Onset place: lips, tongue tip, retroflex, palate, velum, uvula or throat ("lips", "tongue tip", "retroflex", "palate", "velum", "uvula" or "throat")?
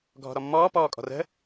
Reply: velum